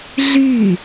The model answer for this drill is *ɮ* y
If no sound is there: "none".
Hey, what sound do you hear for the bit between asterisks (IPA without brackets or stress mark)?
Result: ɮ